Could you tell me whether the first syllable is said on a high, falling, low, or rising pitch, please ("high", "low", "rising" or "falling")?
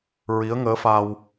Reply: rising